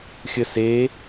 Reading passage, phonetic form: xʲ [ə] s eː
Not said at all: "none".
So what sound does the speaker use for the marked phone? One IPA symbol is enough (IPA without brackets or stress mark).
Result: ə